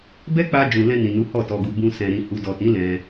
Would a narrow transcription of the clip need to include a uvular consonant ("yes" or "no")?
no